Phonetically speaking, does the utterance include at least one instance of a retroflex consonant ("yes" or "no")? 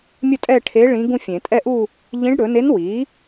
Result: yes